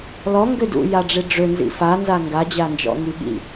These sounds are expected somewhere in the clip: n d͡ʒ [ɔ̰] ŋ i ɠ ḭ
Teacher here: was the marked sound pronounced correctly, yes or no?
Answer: yes